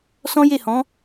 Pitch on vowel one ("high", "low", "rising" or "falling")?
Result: high